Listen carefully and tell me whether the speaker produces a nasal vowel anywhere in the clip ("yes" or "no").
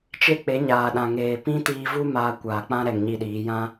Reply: yes